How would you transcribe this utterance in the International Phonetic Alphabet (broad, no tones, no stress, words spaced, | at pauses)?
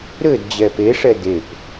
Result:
ɾɘd d͡ʑɛpeʂɛ dep